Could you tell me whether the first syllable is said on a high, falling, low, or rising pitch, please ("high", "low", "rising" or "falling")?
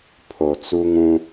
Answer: low